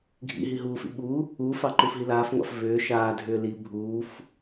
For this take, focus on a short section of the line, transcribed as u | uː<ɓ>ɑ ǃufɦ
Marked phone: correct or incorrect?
incorrect: f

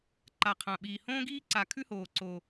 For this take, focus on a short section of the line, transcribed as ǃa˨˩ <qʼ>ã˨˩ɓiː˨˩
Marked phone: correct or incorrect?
incorrect: qʰ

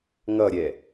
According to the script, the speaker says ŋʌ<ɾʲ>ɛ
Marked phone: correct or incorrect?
correct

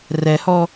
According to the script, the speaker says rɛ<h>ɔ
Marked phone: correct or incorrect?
correct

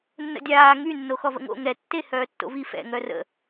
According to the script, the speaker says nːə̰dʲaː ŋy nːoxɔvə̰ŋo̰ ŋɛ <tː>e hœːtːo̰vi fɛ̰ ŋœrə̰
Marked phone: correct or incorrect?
correct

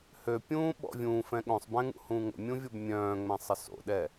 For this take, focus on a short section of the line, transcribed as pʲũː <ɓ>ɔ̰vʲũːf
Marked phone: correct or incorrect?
correct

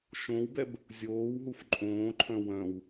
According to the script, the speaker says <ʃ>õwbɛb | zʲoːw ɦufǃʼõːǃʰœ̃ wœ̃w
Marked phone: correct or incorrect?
correct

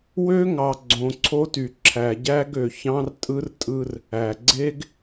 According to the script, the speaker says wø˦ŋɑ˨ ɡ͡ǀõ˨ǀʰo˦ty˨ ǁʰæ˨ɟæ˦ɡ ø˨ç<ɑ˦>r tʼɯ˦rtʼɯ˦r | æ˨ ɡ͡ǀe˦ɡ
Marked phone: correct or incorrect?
incorrect: ɑ̃˦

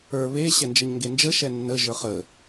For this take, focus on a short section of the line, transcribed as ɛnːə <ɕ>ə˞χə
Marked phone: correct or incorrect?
incorrect: ʒ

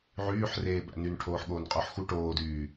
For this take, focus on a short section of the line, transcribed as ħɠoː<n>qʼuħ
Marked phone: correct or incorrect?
correct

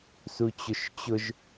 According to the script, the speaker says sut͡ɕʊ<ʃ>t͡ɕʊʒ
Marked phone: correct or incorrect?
correct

